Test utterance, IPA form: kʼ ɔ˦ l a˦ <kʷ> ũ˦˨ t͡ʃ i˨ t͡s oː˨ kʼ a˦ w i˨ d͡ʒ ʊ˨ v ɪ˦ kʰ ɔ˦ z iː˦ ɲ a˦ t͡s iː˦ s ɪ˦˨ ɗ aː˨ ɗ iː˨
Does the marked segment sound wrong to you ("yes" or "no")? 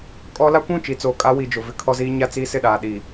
no